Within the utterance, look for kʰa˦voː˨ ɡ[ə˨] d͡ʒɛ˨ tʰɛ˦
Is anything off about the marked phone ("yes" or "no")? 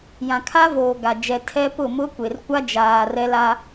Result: yes